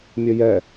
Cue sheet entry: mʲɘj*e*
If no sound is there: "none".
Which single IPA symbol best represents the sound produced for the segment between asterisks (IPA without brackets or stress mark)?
ɛ